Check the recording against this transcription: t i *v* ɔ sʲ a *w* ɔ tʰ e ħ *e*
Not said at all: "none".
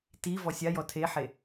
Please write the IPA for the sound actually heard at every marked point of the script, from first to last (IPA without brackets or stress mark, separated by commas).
v, j, e